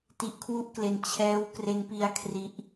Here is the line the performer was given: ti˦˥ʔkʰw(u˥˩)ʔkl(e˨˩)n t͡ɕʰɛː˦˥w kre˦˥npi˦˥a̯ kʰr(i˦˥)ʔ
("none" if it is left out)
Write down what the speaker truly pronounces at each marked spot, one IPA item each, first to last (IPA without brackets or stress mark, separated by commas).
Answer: u˥˩, e˧, i˦˥